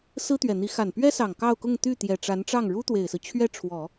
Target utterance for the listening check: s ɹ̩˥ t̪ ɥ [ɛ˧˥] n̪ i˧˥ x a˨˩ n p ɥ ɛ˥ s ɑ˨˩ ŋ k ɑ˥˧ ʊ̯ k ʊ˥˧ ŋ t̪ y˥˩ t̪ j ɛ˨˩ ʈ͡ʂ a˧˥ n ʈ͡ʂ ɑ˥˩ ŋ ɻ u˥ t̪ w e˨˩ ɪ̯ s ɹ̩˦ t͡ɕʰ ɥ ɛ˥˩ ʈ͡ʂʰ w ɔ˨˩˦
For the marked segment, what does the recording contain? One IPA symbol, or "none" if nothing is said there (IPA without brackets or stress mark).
ɛ˨˩